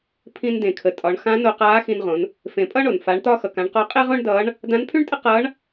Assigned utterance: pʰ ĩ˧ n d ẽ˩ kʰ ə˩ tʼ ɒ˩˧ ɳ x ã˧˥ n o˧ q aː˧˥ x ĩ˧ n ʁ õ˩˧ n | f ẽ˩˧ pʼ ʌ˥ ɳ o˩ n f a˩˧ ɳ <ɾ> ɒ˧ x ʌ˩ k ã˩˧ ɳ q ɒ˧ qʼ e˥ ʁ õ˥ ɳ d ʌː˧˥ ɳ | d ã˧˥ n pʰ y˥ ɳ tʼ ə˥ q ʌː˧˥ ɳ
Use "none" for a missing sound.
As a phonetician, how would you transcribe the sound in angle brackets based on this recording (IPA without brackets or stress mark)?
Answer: t̪